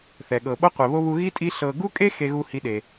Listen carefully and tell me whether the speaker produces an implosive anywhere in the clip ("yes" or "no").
yes